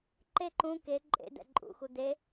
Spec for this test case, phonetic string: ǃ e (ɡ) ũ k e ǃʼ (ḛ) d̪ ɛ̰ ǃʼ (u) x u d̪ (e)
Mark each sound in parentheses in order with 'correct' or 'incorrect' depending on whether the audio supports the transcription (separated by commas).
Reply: incorrect, correct, incorrect, correct